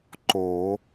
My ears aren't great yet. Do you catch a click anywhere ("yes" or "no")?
yes